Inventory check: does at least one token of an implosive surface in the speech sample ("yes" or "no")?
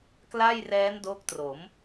no